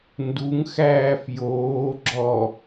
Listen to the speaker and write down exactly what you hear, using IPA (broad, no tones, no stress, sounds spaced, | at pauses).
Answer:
n d u ŋ x æː f j oː ɡ͡ǁ ɔ